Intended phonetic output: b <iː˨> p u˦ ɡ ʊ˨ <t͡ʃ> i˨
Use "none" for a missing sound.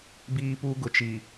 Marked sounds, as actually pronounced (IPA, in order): iː˦, t͡ʃ

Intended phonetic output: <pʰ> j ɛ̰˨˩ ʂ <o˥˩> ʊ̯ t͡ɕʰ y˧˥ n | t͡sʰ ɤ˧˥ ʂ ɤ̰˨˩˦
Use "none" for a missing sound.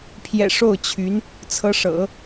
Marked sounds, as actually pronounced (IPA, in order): pʰ, o˥˩

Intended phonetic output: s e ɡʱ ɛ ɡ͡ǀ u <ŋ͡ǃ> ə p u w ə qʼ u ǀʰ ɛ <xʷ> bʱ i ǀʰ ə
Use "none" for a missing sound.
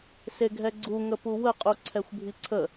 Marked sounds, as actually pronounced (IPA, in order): ŋ, xʷ

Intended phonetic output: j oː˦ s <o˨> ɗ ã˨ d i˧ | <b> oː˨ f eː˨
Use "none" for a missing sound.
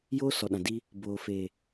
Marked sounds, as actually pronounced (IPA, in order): ɔ˨, b

